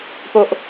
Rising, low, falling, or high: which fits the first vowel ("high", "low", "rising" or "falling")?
low